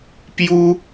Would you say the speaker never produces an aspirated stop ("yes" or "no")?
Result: yes